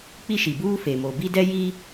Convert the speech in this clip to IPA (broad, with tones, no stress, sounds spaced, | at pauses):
k͡p i˦ ʃ i˨ b uː˦ f e˨ m o˨ b i˦ d ɛ˦ j i˦